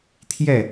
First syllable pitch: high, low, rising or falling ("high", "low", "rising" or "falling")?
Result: falling